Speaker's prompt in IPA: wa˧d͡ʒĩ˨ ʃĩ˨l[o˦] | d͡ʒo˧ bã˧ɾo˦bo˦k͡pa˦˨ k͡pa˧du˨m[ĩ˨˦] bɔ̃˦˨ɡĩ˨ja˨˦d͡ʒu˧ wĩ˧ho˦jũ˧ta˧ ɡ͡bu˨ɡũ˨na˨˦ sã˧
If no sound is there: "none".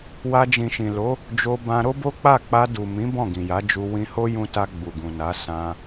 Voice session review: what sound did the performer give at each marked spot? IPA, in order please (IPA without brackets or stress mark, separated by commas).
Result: o˨˦, ĩ˨˦